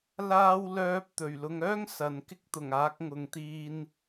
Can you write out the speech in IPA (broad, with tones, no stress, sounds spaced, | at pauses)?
l aː˥ w l œː˥ p̚ t̪ ɵ˨˩ ɥ l ʊ˨˧ ŋ œː˥ ŋ s ɐ˨˧ n k ɪ˥ k̚ t̪ ʊ˨˩ ŋ aː˨˥ k̚ ŋ ʊ˨ ŋ t̪ iː˧ n